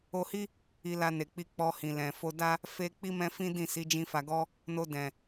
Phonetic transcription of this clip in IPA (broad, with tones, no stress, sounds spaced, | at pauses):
o˧ h i˦ | i˧ l a˧ n e˨ k͡p i˧ k͡p ɔ˧ h ĩ˨ l ɛ̃˨ f o˨ d a˧ | f e˦ k͡p i˦ m ɛ̃˦ f ĩ˦ d ĩ˦˨ s i˨˦ d͡ʒ ĩ˧ f a˧ ɡ ɔ˦ | n o˧ d ɛ̃˨